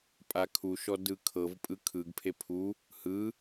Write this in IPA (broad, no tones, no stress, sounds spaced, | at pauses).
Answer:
pʼ a kʰ u ʃ ɔ d ɯ kʰ ɤ v pʼ ɯ kʰ ɯ ɡ pʰ e pʰ u | h ɯ